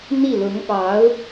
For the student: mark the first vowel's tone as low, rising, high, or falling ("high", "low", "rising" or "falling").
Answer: falling